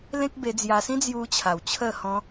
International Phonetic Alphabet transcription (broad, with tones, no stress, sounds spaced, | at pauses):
l ẽ˦ k̚ b e˧ d͡z j a˧ s ĩ˦ d͡z j u˧ t͡ɕʰ a˨˩ w t͡ɕʰ ə˥˧ h ɔ̃˦